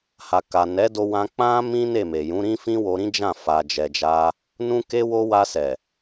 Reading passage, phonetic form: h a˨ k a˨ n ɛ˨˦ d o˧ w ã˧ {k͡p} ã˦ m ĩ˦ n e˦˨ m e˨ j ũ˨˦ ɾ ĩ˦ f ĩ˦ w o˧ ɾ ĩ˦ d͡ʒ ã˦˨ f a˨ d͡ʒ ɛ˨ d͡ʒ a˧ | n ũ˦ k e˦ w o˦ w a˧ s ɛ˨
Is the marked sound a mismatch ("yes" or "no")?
no